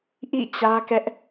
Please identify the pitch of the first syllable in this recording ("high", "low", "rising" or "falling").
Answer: falling